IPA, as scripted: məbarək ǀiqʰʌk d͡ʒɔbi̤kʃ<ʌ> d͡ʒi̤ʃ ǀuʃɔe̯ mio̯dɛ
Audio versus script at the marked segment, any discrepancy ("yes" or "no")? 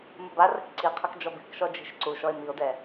yes